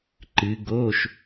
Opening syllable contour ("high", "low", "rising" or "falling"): rising